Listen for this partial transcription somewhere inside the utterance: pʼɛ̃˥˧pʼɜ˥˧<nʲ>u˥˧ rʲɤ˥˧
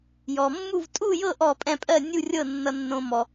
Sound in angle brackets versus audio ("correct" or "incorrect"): correct